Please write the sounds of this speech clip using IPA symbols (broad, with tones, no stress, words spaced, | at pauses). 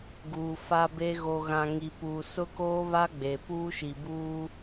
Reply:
ɡuː˨fa˦be˦ ɣo˨ɣã˨ ŋi˨puː˨ sʊ˦koː˦βa˦ ɡ͡be˨ puː˦ʃi˨buː˦